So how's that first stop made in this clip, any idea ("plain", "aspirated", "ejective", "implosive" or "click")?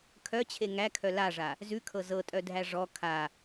aspirated